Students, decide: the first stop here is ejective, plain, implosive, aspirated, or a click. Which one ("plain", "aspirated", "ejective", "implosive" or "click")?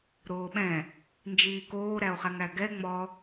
implosive